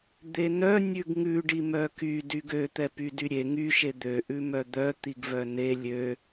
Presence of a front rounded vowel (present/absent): present